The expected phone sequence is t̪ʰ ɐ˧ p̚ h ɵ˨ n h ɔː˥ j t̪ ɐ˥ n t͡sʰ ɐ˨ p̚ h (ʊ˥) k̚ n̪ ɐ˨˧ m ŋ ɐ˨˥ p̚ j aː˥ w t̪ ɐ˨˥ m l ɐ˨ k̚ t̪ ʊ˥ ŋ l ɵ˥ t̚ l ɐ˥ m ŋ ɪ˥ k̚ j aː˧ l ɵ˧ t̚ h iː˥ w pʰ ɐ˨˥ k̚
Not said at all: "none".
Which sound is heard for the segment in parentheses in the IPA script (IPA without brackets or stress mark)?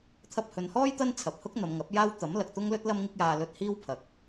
ʊ˥